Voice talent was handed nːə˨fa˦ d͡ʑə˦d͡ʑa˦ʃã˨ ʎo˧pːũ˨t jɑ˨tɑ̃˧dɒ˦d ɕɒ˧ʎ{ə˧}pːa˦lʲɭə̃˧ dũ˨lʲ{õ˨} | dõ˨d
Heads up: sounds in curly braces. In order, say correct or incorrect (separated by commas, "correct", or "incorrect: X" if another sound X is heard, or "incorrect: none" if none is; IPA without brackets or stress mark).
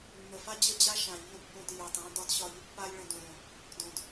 correct, correct